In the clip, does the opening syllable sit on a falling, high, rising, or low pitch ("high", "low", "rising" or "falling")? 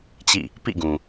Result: falling